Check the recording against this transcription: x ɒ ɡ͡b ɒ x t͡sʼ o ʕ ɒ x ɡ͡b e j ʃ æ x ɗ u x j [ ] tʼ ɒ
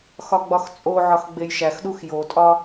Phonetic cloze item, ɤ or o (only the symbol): o